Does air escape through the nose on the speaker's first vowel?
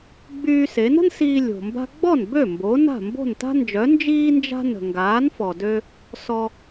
no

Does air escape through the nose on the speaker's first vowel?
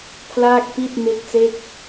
no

